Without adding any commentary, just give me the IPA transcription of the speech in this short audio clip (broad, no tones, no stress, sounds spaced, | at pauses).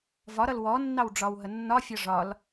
v ɒ ɾ ʌ l w ɔ nː ɑ w ɖ͡ʐ ɒ w ɦ ə nː ɒ fʲ ɒ ʐ ɒ l